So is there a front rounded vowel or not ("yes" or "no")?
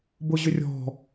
yes